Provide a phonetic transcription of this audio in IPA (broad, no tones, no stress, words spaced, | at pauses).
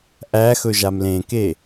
ʔæxɵʒam lẽke